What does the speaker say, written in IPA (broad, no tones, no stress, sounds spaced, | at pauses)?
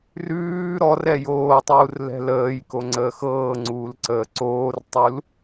r ʉː ɾ ɔ r ɛ j oː tˤ uː r l ɛ̤ l əː j k o ŋ͡ǀ əː x ɤː ŋ͡ǀ uː l ǀ əː ǀ oː r tˤ u l